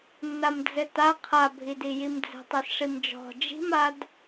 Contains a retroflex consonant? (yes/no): yes